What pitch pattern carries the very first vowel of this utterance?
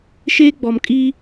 high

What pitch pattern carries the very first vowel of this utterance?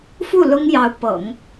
falling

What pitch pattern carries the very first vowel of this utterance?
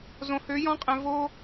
low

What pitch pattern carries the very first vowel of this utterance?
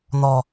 high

